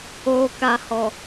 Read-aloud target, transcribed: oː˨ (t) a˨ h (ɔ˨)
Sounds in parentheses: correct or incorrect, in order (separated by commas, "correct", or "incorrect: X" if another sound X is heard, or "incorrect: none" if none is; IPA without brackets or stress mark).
incorrect: k, correct